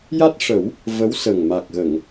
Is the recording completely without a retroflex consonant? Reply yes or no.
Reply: no